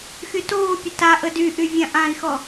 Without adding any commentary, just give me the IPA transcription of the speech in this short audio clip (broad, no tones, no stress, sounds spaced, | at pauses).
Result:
x y t oː pʲ ə t a ʔ ə d y ʔ y vʲ ã ʔ ã i̯ x ɔ